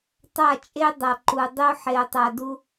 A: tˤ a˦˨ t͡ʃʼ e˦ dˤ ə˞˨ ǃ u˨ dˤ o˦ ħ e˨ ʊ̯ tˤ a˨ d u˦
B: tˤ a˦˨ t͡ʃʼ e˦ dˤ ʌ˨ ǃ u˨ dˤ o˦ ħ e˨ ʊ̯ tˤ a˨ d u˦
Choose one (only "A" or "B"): B